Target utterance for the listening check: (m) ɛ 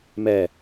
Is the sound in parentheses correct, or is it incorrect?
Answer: correct